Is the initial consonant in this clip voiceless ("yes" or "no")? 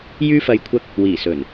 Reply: no